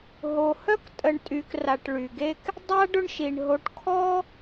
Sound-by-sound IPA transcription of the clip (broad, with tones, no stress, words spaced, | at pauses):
ɦo˩hœ˥ktʼə˨ɳ tʼy˨kra˨ʈɭy˩ɡe˥k | dˤa˥ɖʊ˦ɳʃi˩ɳ ɦo˨ʈkʰɔ˥